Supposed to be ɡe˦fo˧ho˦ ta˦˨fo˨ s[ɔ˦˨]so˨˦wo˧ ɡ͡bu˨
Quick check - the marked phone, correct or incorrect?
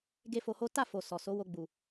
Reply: incorrect